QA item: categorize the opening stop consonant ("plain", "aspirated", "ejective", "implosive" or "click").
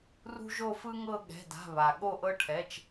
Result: implosive